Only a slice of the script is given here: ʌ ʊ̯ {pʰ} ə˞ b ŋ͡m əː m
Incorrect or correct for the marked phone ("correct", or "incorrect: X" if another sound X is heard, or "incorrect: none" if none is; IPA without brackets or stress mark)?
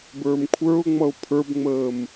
correct